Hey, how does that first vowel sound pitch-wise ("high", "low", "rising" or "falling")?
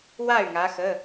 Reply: falling